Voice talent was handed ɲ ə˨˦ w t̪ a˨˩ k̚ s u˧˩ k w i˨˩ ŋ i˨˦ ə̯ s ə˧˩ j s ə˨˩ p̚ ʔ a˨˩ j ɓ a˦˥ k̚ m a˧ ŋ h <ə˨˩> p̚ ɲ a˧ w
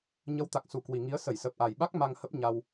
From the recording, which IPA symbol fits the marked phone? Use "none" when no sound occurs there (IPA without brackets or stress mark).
ə˦˥